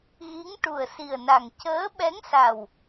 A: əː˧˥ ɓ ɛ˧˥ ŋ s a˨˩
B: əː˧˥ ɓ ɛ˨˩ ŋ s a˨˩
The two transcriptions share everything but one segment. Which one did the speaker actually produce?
A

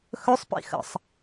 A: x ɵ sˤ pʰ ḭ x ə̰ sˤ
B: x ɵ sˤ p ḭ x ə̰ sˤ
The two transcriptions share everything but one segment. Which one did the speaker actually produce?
B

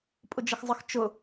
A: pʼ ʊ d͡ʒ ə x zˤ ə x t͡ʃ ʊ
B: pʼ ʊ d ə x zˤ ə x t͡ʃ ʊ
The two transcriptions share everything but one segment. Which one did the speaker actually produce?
A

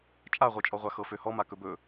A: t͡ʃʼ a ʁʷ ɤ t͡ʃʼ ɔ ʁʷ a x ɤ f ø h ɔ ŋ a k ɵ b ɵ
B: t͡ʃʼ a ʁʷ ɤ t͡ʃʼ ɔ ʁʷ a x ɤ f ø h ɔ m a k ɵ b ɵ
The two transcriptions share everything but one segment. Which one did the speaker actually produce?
B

